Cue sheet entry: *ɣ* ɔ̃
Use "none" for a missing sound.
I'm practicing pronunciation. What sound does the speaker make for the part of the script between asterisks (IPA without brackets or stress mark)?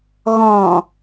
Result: ɣ